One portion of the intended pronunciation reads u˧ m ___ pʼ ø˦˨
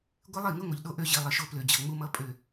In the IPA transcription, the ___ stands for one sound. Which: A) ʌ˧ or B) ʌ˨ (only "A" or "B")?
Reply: A